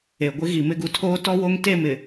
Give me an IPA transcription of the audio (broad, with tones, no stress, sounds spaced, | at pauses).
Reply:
e˨ ɡʷ ɪ˦ ɣ i˨ m ɪ˦ ɡ u˨ tʰ oː˦ t ɔ˦ w o˦ ŋ t e˦˨ m ɪ˨